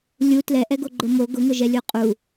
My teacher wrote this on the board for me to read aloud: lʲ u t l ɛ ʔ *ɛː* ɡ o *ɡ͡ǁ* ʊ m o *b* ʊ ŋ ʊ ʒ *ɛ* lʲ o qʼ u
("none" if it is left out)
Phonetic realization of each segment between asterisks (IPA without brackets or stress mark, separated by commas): ɛ, ɡ͡ǃ, ɡ, ɛ